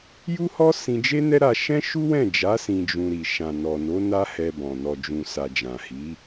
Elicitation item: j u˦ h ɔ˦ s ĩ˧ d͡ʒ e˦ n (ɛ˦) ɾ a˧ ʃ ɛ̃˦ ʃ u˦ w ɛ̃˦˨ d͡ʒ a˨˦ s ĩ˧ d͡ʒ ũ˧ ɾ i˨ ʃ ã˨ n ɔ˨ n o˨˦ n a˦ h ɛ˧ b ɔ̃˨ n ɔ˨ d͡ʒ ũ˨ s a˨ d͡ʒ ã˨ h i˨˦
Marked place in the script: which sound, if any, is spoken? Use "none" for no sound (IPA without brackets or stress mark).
ɛ˦